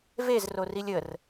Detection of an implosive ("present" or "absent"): absent